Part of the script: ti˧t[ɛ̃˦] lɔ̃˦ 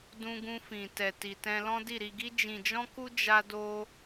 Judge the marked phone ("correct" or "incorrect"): correct